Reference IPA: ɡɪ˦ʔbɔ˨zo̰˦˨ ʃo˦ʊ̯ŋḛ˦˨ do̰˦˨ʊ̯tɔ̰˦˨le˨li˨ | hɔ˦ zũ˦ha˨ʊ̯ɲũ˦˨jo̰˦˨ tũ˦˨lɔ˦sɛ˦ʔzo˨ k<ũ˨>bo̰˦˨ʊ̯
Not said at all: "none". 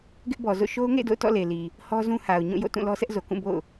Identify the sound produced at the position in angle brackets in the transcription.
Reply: ũ˦˨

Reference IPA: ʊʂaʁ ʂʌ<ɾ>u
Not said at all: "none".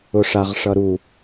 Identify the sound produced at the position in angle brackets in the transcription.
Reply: ɾ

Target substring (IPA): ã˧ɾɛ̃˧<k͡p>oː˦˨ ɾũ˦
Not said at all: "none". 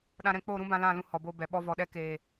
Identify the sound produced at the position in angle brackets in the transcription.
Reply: k͡p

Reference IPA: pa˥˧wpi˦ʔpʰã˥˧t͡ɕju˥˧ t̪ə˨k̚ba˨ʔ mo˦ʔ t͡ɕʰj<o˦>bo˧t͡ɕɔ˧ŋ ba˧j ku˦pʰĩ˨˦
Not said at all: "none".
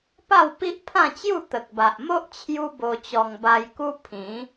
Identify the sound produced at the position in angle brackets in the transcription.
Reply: u˦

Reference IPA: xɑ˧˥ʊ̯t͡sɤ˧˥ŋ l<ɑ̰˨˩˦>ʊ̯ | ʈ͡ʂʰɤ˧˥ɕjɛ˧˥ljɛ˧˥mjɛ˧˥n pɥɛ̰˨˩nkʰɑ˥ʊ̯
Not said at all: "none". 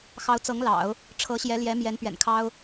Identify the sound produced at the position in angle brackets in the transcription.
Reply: ɑ̰˨˩˦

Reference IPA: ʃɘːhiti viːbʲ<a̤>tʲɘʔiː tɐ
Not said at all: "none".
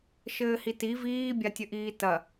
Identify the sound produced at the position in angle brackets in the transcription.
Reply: a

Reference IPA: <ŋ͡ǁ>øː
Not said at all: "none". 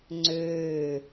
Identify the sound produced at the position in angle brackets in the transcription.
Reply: ŋ͡ǀ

